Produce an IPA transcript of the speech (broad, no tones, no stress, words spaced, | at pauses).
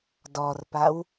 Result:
dɔrpaw